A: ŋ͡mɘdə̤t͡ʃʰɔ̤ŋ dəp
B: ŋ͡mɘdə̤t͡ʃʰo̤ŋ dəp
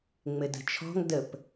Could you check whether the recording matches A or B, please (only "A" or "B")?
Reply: A